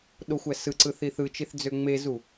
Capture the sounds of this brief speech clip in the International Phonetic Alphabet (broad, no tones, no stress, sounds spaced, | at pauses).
ɗ o xʷ æ s ɯ ǀ ɯ θ i θ ɯ t͡ʃ i θ d͡z ø ŋ͡m e z u